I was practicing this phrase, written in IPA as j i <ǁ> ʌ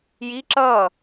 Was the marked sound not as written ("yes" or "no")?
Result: no